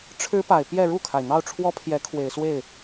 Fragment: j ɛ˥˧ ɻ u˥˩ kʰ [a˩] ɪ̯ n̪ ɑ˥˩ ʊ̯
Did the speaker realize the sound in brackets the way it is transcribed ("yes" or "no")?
yes